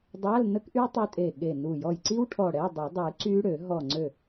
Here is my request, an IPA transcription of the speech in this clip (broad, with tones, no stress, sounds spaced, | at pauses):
dˤ a˧˥˧ l n ə˦˥ k ʔ y˦˥ tˤ e˦˥ tʼ e˧˩ ɠ e˧˩ n u˧˩ j ɔ˧˩ j ǀ i˦˥ w ʈʰ ɔ˧˩ ɽ ɛ˧˥˧ dˤ y˨˩˦ dˤ y˨˩˦ ǀ y˦˥ ɽ ø˨˩˦ ɦ ɔ˧˩ ŋ͡ǀ ø˧˩